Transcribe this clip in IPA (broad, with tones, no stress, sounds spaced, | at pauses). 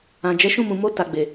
ã˨ d͡ʒ ɛ˨˦ ʃ ũ˦˨ m ũ˨ m o˧ t a˨ ɡ͡b e˨